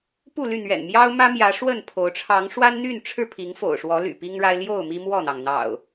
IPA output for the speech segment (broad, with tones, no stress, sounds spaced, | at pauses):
p u˥˨ l y˥˨ n̪ ɥ ɛ̰˨˩ n m j ɑ˦ ʊ̯ m ä˦ m j ä˨˦ ʂ w ə˥˨ n pʰ o˨˦ ʊ̯ ʈ͡ʂʰ ɑ˨˦ ŋ ʂ w a˦ n n̪ y˥˨ n ʈ͡ʂʰ ɻ̩˥˨ pʰ i˨˦ ŋ f o̰˨˩ ʊ̯ ʂ w ɔ˨˦ l y̰˨˩ p i˦ ŋ ɻ a˦ ɪ̯ l j o˥˨ ʊ̯ m i˦ m w ɔ˥˨ n̪ ɑ˩ ŋ n̪ ɑ̰˨˩ ʊ̯